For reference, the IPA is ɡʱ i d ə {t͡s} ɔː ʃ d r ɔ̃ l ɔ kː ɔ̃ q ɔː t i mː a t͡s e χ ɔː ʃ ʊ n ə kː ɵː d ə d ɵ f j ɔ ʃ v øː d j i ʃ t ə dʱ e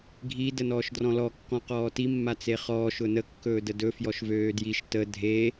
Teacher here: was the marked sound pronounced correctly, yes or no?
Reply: no